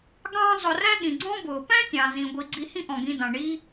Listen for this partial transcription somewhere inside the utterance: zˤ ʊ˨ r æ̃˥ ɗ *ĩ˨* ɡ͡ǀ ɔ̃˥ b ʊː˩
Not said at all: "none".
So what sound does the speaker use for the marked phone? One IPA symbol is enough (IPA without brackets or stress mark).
ĩ˩